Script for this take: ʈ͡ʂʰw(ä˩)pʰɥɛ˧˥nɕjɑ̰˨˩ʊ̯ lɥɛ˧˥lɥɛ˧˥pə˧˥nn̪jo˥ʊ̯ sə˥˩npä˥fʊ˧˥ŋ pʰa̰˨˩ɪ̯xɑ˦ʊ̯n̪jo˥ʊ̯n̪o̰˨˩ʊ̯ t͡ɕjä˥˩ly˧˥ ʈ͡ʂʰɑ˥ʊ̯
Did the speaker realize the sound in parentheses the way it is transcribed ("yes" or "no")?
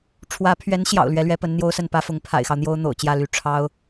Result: no